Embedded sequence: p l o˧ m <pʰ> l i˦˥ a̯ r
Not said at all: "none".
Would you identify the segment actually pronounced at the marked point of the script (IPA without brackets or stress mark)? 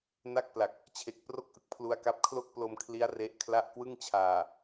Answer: kʰ